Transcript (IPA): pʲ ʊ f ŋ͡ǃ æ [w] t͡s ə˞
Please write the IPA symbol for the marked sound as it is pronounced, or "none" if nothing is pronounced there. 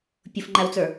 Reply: w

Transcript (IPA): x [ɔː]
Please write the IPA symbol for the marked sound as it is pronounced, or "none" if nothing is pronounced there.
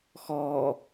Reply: ɔː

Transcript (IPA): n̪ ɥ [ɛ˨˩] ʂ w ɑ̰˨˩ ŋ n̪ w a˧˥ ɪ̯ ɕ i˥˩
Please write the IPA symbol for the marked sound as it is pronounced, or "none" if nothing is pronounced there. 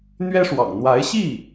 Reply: ɛ˥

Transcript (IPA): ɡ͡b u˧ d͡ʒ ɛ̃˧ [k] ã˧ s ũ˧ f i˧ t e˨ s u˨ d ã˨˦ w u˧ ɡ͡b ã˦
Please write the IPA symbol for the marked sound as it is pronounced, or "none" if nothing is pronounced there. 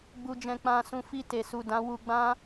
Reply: k͡p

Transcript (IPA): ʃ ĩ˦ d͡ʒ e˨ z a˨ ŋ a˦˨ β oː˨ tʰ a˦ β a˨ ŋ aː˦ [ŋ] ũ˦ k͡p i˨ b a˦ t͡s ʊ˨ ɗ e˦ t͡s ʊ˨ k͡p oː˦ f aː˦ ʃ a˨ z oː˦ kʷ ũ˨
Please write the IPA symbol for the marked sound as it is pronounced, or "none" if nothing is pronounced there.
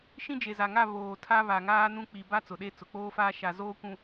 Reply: n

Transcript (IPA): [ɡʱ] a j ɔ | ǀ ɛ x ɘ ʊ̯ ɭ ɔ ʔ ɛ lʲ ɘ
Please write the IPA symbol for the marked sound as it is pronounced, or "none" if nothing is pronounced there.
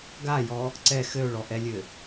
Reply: ɡ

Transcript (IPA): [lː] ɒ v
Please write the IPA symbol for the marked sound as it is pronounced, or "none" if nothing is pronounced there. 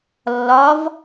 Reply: lː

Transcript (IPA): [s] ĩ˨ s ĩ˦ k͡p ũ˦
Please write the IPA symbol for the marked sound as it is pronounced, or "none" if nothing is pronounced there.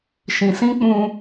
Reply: ʃ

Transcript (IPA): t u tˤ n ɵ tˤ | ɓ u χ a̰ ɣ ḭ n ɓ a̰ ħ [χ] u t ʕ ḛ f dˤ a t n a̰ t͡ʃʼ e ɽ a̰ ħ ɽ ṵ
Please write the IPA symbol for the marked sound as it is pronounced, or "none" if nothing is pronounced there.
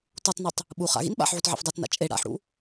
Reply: ʕ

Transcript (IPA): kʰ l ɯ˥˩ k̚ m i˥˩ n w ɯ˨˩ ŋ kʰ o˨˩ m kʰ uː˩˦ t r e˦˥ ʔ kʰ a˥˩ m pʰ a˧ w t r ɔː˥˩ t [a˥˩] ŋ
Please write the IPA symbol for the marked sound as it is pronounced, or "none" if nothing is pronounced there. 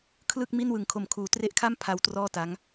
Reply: a˦˥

